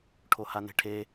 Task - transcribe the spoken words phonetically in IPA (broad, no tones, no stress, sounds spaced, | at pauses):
ʈʰ o h a n e̤ ʈʰ e